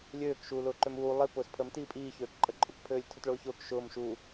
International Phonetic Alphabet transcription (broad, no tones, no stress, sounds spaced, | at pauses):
lʲ øː k ʃ uː l ʊː ǃ ø m uː lˠ i p ʊː s pʰ ə m t iː pʼ iː ç øː k ǃʼ ə ǃʼ ʊ k pʰ øː lʲ tʰ ʊ t ɭ ʊː ç ʊː k ʃ ʊː m ʃ u